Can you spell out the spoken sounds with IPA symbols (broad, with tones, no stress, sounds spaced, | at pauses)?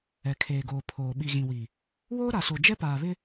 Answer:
ɛ˨ kʰ eː˨ ɡ oː˨ pʰ oː˨ ɓ i˨ ɣ ĩ˨ w i˨ | w oː˦ ɾ a˨ s o˨ d͡ʒ ɛ˦ p aː˨ β ɪ˦